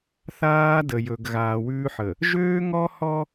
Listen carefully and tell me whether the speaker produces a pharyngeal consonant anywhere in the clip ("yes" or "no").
yes